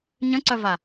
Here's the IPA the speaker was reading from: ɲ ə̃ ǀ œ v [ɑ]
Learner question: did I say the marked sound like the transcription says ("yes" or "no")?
no